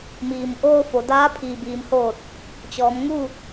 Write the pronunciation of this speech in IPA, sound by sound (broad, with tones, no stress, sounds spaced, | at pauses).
m iː˩ m ʔ oː˧ f o˩˧ d aː˧˥ pʰ iː˩ b iː˩˧ m h oː˧˩ t̚ | t͡ɕ ɔː˩˧ m ŋ u˥˨